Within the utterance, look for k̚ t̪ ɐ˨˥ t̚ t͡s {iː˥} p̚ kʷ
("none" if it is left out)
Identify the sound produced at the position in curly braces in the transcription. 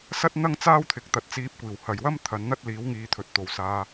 iː˧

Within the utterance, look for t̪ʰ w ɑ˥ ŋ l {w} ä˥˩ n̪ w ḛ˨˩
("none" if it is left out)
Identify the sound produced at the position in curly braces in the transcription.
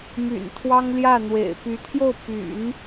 j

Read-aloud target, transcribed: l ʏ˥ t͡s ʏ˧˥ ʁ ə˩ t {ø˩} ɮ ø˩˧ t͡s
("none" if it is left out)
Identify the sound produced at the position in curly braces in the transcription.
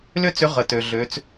ø˩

